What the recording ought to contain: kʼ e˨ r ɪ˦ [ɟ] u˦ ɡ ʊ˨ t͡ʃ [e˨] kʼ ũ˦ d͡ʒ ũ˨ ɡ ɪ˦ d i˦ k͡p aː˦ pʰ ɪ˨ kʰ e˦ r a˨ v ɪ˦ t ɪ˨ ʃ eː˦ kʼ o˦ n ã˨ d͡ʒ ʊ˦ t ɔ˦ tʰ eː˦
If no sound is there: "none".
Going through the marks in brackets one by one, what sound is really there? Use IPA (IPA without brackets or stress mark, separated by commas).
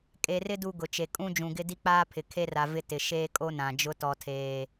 d, e˨